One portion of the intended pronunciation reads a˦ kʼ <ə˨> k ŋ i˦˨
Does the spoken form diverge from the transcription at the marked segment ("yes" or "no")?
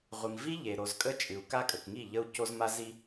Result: no